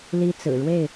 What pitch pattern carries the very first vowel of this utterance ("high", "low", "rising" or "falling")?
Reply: high